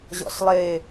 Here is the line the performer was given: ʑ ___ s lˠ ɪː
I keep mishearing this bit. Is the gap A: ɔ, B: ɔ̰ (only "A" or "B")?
B